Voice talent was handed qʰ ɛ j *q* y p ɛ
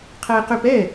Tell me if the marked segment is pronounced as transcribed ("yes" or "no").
yes